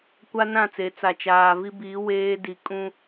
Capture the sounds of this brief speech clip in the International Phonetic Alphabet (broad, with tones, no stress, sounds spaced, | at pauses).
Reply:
kʷ a˦ n ã˦˨ t͡s e˨˦ t͡s a˨ t͡ʃ aː˨ v i˦ b iː˨˦ w eː˦ d i˨ kʼ ũ˦